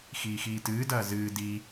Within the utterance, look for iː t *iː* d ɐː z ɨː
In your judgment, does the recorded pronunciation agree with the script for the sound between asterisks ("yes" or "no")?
no